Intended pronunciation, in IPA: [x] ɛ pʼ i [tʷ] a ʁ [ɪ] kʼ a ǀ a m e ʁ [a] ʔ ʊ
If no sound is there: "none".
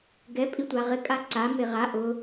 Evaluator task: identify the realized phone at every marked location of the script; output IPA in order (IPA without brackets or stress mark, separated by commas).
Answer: ɡ, tʷ, ɪ, a